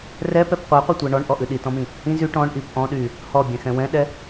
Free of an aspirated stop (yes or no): yes